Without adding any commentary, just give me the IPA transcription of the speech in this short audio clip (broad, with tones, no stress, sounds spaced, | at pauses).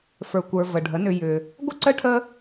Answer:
f ə˞˨ kʷ ə˞˨ v ə˨ ɖʱ ə˨˦ n ʏ˧ j ʏ˧ | ɡʷ ə˦ ǀ ə˦ ʈʰ ə˦